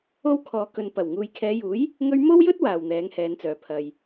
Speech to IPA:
o˥ w kʰ ɔː˨ k ɵ˨ n p ɐ˨˩ w ŋ uː˨ j kʰ ɛː˨˧ j uː˨˥ j | ŋ ɵ˧ ɥ m o˥ w j ɵ˥ t̚ w aː˨ w n̪ ɛː˨˥ ŋ h ɛː˨˧ n t͡s œː˨ pʰ ɐ˨ j

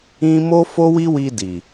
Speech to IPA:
ĩ˦ m o˦ f o˦ w i˦ w i˧ d i˨

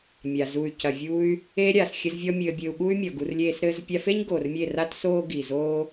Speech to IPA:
mʲ a˨ z u˨ y̯ c ɐ˨ vʲ u˧ y̯ | e˧ ɾʲ a˨ s xʲ ɘ˦ z vʲ ɔ˦ mʲ ɘː˧ bʲ ɘː˧ u̯ ɠ u˦ y̯ mʲ ɔ˨ ɡ u˧ r lʲ eː˦ s ɾ ɘː˦ z pʲ a˧ f e˦ ɲ ɡ oː˨ r mʲ e˦˨ r a˦ t s oː˦ ɡ i˨ z oː˦

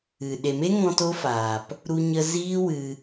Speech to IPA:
ɨ˨ ɗ e˨ m e˦ ŋ ɔ̃˧ t o˦ f aː˨ p | ɾ u˧ ɲ ə˧ z iː˦ w ɨ˧

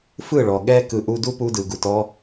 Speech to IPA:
f ɯ˦˨ ɭ ɔ˨ ɠ ɛ˦ k ɯ˨ ʔ u˧ d u˦ p u˧ d ɯ˨ ɡ u˨ t ɔ˧

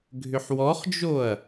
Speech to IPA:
ɡʱ ʏ ħ w ɔ χ d͡ʒ o ɐ̯

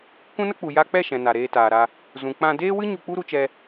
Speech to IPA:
k ũ˦ n ə˦ k͡p u˨ j a˧ k͡p ɛ˦˨ ʃ ɛ̃˨ n a˨ ɾ eː˧ t aː˨ ɾ a˧ | z ũ˨ k͡p ã˧ d eː˦ w ɨ˦ ɲ u˧ k͡p u˦ ɾ u˧ t͡ʃ ɛ˧

